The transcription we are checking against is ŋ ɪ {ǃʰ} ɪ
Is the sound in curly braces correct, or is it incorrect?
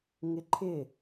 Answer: correct